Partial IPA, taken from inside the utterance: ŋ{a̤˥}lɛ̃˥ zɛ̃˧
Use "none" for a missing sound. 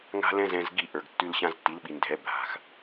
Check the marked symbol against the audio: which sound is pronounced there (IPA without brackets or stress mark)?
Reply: a̤˥